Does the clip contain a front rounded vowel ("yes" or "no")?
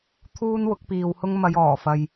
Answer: no